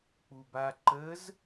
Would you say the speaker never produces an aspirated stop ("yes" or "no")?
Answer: yes